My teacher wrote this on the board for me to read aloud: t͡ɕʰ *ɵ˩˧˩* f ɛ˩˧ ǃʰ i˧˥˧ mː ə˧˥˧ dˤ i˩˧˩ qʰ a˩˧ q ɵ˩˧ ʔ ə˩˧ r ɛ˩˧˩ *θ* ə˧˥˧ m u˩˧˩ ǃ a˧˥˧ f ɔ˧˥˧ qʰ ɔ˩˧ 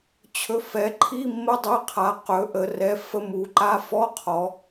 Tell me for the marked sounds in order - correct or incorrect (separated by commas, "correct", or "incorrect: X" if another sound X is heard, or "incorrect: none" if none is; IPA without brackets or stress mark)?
correct, incorrect: f